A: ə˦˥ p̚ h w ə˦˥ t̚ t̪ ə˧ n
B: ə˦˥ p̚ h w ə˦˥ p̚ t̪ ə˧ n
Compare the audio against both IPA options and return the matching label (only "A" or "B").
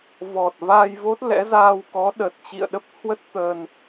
A